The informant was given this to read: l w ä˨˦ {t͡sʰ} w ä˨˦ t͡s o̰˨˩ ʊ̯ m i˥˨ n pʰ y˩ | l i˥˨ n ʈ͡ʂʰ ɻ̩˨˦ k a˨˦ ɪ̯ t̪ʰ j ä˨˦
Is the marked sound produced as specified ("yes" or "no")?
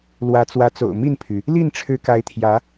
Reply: no